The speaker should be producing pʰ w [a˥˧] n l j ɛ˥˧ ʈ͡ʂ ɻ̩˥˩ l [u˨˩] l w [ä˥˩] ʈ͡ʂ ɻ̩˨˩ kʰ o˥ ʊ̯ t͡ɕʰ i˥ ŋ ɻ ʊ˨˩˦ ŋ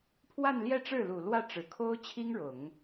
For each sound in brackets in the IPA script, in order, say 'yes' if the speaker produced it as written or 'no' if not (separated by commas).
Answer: yes, yes, yes